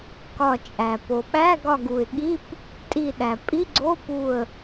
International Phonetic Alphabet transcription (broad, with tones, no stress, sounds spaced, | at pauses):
k ɒ˧˩ t͡ʃʼ æ˩ p o˩ ɓ æ˧˥˧ ɡ ɒ˧˩ ɡ u˩ ɪ̯ ɠ i˧˥˧ p | tʼ i˧˩ ɗ æ˩ pʼ i˧˥˧ ɡ͡ǀ o˧˥˧ p u˧˩ ə̯